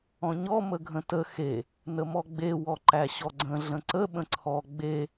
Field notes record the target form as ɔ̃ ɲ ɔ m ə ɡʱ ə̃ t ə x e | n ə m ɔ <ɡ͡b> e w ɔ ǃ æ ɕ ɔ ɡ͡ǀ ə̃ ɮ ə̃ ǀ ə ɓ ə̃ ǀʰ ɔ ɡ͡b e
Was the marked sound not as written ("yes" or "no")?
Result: no